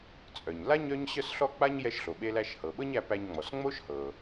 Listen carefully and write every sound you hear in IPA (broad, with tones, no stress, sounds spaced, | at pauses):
t͡sʼ œ˩ ɲ l a˥ ɲ œ˥ ɲ ɕ œ˥ s ɬ ɔ˥ k͡p a˥ ɲ j ɛ˧ ʃ ɬ o˩ ɓ e˧ l æ˧ ʃ h ɤ˩ ɓ ɤ˥ ɲ æ˧ p æ˧ ɲ ŋ͡m ɔ˩ s ŋ͡m o˥ ʃ h ɤ˩